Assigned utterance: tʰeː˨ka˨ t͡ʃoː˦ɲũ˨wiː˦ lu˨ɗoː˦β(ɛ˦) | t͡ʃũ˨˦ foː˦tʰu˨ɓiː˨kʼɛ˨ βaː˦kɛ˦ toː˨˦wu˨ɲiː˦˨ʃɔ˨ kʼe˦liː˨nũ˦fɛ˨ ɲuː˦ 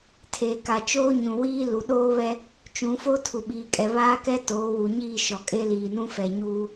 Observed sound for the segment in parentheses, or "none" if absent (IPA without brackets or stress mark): ɛ˦